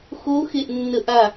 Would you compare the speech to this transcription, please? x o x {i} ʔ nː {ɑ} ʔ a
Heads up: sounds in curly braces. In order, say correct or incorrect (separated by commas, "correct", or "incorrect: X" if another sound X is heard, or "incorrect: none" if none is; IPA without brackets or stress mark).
incorrect: e, incorrect: ə